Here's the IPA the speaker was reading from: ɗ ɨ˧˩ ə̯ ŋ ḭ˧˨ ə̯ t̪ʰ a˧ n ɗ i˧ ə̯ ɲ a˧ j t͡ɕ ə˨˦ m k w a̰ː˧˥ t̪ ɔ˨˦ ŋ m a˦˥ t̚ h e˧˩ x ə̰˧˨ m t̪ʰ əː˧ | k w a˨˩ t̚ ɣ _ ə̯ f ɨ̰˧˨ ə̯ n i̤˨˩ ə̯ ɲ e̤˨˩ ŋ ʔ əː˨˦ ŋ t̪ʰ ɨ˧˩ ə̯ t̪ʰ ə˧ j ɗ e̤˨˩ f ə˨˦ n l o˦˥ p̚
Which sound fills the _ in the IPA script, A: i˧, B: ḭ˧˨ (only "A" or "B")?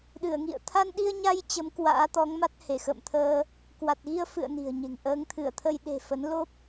A